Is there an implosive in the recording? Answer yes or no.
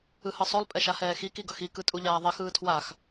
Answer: no